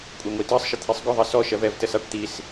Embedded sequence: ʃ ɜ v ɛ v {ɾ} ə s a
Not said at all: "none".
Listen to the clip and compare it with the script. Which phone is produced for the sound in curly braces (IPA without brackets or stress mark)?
t